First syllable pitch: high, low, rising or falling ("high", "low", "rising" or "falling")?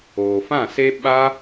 low